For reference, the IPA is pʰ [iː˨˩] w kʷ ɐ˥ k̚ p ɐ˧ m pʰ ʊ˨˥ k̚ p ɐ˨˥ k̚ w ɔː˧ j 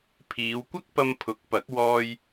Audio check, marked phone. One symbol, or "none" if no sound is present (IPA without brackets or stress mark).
iː˨˧